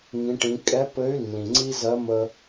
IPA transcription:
ŋ ĩ˩˧ ʈ ĩ˩˧ kʼ ɛ˧˥ p ɘ˧˥ y̯ lː ĩ˩ ŋ͡ǀ i˥ z ɜ˧˥ m ə˧

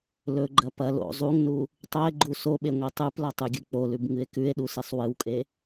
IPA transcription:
l ɵ ɡ͡ǃ ɐ p ɐ l o̰ zˤ u ŋ n u | tˤ ɵ e̯ ɡ͡ǃ u s o ɓ e ŋʷ e tˤ ʉ p l ɐ tˤ ʉ ɡʲ ɨ k͡p o l ʉ b ŋ ɨ e̯ k ʉ e̯ ɗ u s e sˤ w ɨ w kʼ e

